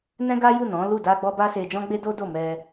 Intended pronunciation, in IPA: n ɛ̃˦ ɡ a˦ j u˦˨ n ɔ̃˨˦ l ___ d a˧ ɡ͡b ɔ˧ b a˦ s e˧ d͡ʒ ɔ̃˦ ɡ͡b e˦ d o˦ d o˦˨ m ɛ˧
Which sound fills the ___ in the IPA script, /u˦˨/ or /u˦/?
u˦˨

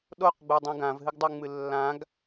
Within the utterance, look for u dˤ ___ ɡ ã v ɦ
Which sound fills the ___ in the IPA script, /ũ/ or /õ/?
ũ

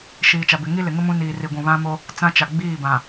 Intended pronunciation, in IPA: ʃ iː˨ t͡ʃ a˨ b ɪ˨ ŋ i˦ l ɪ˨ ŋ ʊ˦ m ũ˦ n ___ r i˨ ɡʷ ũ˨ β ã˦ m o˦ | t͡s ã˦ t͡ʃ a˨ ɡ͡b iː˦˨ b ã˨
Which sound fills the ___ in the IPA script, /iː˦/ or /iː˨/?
iː˨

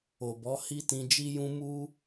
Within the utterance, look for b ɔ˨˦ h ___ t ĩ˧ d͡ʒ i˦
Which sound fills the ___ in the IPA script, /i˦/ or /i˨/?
i˦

